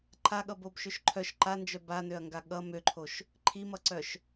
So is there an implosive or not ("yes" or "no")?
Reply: yes